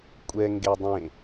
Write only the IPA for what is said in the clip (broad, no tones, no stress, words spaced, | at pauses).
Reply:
kʷʼɛ ŋɡedˤẽ